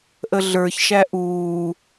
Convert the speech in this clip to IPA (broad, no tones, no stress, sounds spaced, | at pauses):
ʔ ə ɮ ə˞ ç ʃ æ ʔ uː